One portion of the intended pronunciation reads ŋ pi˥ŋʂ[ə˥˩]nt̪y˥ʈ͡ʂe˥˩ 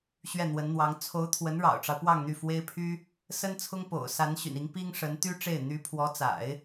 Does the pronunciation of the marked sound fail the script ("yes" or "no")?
yes